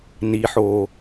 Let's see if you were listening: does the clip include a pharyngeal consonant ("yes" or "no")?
yes